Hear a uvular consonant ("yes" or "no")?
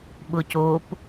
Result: no